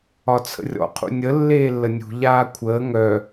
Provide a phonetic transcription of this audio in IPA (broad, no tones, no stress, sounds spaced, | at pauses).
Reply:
ɒ t͡sʰ ə̰ rʲ ɔ̰ qʰ ṵ nʲ ə lː eː lː ə nʲ ṳ ʎ aː kʷʰ əː ŋ œ